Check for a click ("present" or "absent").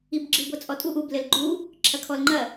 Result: present